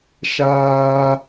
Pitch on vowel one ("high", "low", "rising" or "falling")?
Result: high